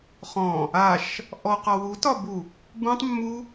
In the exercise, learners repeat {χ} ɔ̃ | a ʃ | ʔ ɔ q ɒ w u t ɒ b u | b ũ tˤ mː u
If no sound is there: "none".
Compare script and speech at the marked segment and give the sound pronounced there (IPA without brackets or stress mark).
χ